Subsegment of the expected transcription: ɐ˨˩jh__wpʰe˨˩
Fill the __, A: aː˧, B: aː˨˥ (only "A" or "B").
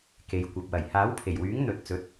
B